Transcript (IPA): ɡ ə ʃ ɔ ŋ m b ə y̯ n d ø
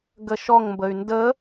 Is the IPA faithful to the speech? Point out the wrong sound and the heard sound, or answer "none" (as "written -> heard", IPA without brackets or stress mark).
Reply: ø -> ə